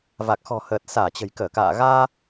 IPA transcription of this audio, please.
va˨˩k̚xɔ̤˨˩həː˨˩t̚ saː˧˩t͡ɕə̤˨˩jkəː˧˩ka̰ː˧˨ ɣaː˧

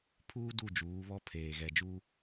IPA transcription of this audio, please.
pʰuː˦ du˦˨d͡ʒuː˨˦βɔ˦ pʰeː˨ɣɛ˨d͡ʒu˦

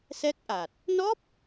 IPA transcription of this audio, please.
sɛ˦˥k̚ʔa˨˩t̚ | nɔ˦˥p̚

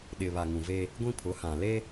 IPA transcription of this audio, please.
ɗɪ˨βa˨ŋũ˨ve˦ | ɡʷĩ˦pʰʊ˨˦hã˨le˦

